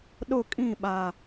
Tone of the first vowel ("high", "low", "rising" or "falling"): falling